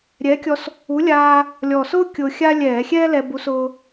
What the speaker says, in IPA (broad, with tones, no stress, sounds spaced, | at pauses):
ɾʲ ɛː˨˥ kʲ ɔ˧ s | u˨˥ lʲ aː˧ | lʲ ɔ˨˩ s ʊː˥ kʲ ʊː˧ xʲ a˥ lʲ ɛː˧˩˧ xʲ ɛː˥ l ɛ˧ b u˨˥ s ʊː˧